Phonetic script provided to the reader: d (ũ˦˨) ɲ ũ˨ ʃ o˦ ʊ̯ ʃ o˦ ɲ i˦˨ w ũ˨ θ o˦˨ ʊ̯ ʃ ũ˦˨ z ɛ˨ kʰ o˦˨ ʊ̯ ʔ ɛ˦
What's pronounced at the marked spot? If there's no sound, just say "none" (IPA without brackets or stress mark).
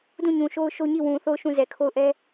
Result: ũ˦˨